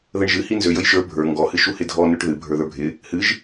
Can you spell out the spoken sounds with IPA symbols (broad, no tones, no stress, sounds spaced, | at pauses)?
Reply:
ð ə ɳ ʒ ɨ h i n z ø j ə j ʃ ə˞ bʱ ə˞ ŋ ɡ ɔ h ɨ ʃ u h ɪ dʱ ɔ n ø ʈ ð ɨ bʱ ə˞ ð ə˞ bʱ ɪ | h ɨ ʒ